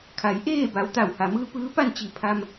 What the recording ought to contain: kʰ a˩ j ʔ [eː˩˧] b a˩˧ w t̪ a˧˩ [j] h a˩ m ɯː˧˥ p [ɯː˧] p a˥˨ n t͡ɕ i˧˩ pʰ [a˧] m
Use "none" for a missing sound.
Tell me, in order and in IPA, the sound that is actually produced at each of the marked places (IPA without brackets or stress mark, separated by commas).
eː˥˨, w, ɯː˧˥, a˧